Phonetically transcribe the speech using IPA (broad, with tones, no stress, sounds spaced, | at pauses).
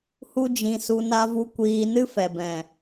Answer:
h u˦ d͡ʒ ĩ˧ s u˧ n a˦ v u˦ kʷ iː˧ n ɨ˦ f ɛ˨ b ɛ̃˨